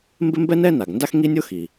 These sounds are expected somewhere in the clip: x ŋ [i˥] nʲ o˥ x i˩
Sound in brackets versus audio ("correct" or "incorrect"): correct